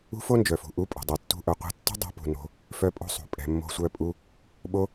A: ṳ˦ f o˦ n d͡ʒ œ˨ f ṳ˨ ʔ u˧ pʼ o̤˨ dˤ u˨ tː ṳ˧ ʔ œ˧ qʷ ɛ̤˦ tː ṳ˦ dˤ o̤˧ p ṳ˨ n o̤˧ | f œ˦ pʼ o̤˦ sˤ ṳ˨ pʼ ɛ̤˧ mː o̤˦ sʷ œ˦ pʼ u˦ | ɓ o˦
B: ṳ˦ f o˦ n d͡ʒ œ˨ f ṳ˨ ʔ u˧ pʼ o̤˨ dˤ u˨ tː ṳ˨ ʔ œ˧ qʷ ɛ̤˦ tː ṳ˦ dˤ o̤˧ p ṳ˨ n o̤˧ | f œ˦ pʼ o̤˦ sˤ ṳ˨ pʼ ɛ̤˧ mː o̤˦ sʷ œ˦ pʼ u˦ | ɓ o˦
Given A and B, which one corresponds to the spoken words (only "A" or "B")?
A